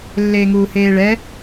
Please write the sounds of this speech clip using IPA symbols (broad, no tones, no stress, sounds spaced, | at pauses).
lː eː ŋ uː h eː ɭ ɛ